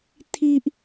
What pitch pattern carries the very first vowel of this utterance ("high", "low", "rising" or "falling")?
high